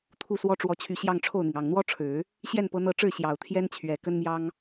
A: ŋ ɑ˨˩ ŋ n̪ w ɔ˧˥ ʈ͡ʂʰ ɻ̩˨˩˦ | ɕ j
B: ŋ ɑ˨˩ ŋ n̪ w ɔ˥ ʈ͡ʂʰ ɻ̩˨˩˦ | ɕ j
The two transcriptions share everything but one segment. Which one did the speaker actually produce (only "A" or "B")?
B